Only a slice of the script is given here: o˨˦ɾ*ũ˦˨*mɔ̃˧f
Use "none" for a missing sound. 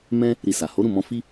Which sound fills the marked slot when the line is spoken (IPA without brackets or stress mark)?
ũ˦˨